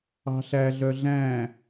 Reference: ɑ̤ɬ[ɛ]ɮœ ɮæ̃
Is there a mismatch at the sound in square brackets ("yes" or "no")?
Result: yes